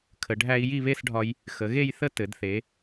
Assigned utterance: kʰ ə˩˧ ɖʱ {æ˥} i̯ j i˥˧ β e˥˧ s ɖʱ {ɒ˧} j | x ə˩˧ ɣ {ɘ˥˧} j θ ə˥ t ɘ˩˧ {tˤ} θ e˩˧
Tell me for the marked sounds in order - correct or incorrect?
correct, correct, incorrect: e˥˧, incorrect: d

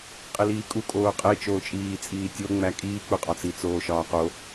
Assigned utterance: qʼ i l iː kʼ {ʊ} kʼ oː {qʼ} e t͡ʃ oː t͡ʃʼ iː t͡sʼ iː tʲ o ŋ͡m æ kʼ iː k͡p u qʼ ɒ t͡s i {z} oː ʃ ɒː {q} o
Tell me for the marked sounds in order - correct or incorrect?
incorrect: u, correct, incorrect: t͡s, correct

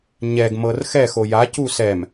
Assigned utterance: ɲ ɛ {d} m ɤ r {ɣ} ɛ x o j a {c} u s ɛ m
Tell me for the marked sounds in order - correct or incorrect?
incorrect: ɡ, incorrect: x, correct

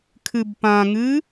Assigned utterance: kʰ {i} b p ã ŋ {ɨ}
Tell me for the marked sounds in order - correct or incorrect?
incorrect: ɨ, correct

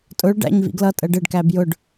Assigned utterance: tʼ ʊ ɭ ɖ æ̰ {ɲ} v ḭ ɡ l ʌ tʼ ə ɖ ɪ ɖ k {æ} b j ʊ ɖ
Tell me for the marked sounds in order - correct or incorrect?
correct, correct

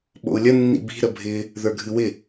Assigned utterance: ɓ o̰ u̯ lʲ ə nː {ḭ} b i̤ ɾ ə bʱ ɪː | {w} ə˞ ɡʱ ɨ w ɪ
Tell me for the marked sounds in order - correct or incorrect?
correct, incorrect: ð

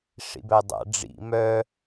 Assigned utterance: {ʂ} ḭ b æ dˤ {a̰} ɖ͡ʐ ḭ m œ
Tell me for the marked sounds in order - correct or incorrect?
correct, correct

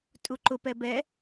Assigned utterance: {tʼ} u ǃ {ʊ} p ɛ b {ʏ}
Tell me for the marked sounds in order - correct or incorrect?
correct, correct, incorrect: ɛ

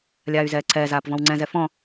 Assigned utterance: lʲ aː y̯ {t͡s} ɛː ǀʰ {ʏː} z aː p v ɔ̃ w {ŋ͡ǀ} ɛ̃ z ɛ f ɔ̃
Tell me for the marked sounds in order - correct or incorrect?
incorrect: z, incorrect: ɛː, correct

